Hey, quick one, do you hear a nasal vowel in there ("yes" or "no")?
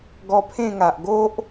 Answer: yes